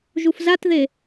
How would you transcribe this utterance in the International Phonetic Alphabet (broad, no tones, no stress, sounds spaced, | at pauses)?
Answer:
ʒ u f z a t ð e